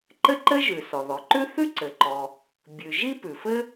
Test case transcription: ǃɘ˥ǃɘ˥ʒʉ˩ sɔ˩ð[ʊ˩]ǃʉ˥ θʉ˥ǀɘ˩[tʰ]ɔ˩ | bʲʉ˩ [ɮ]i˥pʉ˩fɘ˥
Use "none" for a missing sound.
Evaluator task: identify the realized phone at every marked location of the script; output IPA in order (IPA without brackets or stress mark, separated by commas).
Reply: ɔ˩, ǃ, ʒ